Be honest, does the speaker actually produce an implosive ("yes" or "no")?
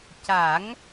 no